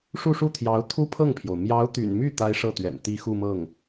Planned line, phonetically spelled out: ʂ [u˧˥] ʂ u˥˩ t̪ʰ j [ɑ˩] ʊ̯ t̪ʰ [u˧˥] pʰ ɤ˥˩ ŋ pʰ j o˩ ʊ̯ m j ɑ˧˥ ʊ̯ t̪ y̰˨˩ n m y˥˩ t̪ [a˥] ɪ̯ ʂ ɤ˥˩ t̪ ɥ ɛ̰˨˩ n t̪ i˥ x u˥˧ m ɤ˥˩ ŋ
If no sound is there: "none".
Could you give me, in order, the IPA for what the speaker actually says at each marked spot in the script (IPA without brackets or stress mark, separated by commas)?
u˥˧, ɑ˧˥, u˥, a˥